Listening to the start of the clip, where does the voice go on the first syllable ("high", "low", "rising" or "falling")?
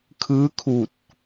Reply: rising